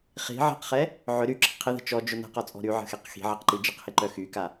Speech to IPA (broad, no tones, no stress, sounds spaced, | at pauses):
χ i̤ ʕ i̤ q χ ɛ | ʕ ʏ ɾ y ǁ ə̤ qʰ ɪ ð ə̤ t͡ʃ ɔ d͡ʒ ʊ n ə̤ q ɔ t͡sʼ ɔ̤ ɾ y ʕ ə̤ x e q x i̤ ʕ ɪ q ǃ i d͡ʒ ɪ q h e ǃ œ x y k a